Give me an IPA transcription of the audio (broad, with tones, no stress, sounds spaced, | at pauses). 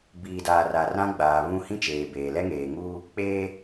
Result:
b iː˨ d aː˨ r a˨ r ã˦ ɡ͡b aː˨ β ũ˦ h ĩ˦ t͡ʃ eː˨ b eː˨ l ɛ˦ ŋ eː˨ ŋ uː˦ | k͡p eː˦